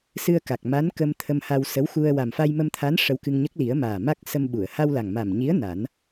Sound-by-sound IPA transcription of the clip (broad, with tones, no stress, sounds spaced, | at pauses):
s ɨ˧ ə̯ k a˨˩ k̚ m a˧˥ n k ə˧ m t̪ʰ ə˧ m h a˧ w s ə˧˥ w x u˧ ə̯ w a˨˩ m f a˧ j m ə˧ m t̪ʰ a˧˥ n ʂ ə˧ w k ɨ˧ ŋ ɲ ə˦˥ k̚ l i˨˩˦ ə̯ m aː˨˩ m a˦˥ k̚ s ə˧ m ɓ u˨˩˨ ə̯ h a˧ w l a˨˩ ŋ m a˨˩ m ɲ i˧˥ ə̯ n a˨˩˦ n